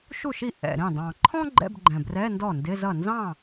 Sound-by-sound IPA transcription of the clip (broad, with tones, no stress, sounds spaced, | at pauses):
ʃ u˥˩ ʃ i˥˩ ʔ ɛ̰˨˩ ɾ ĩ˥˩ dˤ ɑ̃˨˩ ǃʰ ɔ̃˥ ɡ͡ǃ ɛ̰˧˥˧ b ɡ͡ǃ ɛ̃˨˩ b r ɛ˧˥˧ n d ɔ˥˩ n d ɪ˧˥˧ z ʌ˥˩ n z ɑ̃˥˩